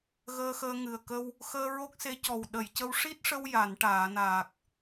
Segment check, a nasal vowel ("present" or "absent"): absent